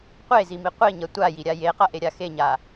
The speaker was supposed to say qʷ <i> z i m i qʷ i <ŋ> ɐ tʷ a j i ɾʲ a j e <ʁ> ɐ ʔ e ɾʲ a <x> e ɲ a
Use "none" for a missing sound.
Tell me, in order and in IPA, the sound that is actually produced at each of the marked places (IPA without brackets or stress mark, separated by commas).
e, ɲ, q, x